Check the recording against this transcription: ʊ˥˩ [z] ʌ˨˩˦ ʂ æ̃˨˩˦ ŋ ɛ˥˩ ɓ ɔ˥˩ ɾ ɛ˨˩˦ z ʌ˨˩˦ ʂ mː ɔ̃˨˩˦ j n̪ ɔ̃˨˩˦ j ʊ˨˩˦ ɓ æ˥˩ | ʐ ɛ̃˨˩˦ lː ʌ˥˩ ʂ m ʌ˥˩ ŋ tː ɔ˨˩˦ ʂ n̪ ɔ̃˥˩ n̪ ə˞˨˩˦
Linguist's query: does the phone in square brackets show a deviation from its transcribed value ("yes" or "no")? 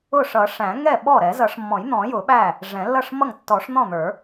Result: yes